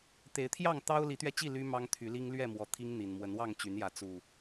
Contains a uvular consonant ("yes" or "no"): no